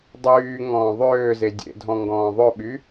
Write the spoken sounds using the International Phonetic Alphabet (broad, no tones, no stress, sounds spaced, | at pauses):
dˤ yː ŋ ɔ̃ː ðˤ øː z e dʲ ḛ dʱ ɔ̃ ŋ ɡ ɔ̃ː ðˤ ɵ ɓ y